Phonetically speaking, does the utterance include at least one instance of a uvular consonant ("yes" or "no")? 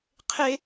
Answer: yes